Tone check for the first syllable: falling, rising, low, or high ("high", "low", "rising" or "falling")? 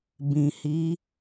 low